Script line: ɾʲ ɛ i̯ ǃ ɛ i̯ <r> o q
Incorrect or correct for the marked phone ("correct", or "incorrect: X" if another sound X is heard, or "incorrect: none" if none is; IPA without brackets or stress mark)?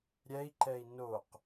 incorrect: n